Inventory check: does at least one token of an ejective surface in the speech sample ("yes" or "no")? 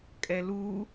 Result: yes